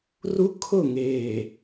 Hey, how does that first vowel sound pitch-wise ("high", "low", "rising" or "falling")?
high